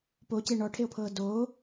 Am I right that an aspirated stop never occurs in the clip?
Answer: no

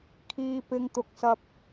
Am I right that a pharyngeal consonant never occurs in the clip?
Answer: yes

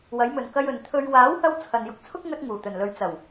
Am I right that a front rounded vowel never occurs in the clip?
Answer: yes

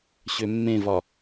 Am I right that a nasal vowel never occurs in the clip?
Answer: no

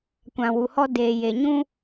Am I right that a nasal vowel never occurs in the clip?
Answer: no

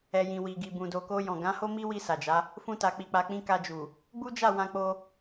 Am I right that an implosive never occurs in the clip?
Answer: yes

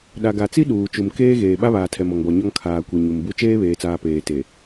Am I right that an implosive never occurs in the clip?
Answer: no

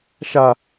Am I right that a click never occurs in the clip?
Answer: yes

